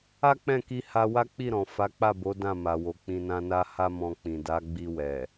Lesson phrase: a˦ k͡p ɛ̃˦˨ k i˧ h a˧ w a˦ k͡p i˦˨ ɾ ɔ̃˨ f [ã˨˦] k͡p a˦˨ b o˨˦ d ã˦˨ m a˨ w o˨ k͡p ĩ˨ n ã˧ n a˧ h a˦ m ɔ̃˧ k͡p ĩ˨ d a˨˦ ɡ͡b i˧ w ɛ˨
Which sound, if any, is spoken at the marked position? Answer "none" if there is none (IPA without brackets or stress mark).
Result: a˨˦